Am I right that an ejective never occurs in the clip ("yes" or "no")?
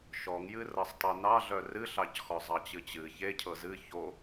yes